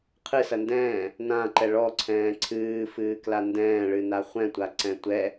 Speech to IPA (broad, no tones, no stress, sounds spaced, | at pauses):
qʰ ɨ s ɐ n d ɛ̃ː | n ã ǃ ɛ ɭ ɔ ǀʰ ɛ̃ː ǀʰ ɨː f ɨː k l a n d ɛ̃ː ɭ ɨ n a χʷ ɛ̃ tʷ a ǀ ɛ̃ tʷ ɛ